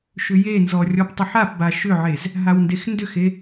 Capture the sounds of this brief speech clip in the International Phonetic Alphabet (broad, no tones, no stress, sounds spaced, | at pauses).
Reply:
ʃ ʏ j e n z ɔ rʲ ɔ p tˤ ʏ ħ a p b a ʃ ʏ ʕ e z | ɦ a w n d e x n d ʏ x e